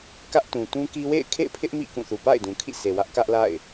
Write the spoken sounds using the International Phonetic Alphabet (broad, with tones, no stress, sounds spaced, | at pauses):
k ä˦ ʔ t ũ˨ t ũ˦ k i˦ w ḛ˦˨ ɪ̯ kʰ ḛ˦˨ ɪ̯ pʰ ɪ˦ ʔ m ḭ˦˨ k ũ˦˨ θ u˨ p a̰˦˨ ɪ̯ d ũ˨ kʰ ḭ˦˨ s e˨ w ä˦ ʔ k ä˦ ʔ l a̰˦˨ ɪ̯